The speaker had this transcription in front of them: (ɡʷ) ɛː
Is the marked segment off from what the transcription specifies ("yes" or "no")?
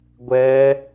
no